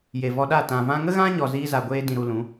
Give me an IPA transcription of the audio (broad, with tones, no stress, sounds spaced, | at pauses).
j e˨ v ɔ˧ ɗ a˦˨ t ã˨ v ã˧ ŋ ə˦ ɣ ã˦ ɲ ɔ˧ z iː˦ z a˧ ɡʷ eː˦ d ĩ˧ ɾ u˧ l ũ˨˦